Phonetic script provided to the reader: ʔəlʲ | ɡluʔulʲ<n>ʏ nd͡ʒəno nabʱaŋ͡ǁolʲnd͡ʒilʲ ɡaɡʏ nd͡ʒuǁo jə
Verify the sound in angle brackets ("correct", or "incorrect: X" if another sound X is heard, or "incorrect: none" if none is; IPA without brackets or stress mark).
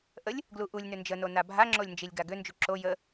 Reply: correct